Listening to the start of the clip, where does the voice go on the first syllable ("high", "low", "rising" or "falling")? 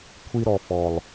high